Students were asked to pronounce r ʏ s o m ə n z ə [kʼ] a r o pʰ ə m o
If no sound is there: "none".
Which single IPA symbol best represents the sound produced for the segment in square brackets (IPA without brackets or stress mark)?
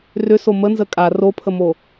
kʼ